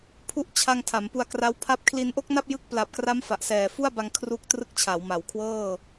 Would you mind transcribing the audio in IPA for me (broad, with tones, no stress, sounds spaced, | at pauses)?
pʰ u˦˥ ʔ t͡ɕʰ a˧ ŋ tʰ a˩˦ m p u˧ a̯ k r a˦˥ w pʰ a˦˥ p̚ kʰ l i˧ n ʔ o˥˩ k̚ n a˥˩ p̚ j ɯ˦˥ k̚ p l a˨˩ p̚ k r a˦˥ m f a˨˩ ʔ s ɛː˨˩ f u˥˩ a̯ b a˧ ŋ kʰ r u˦˥ k̚ t r ɯ˦˥ k̚ t͡ɕʰ a˩˦ w m a˩˦ w kʰ w ɤː˥˩